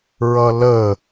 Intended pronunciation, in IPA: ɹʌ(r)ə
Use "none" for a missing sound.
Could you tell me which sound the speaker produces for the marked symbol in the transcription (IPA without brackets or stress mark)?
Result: l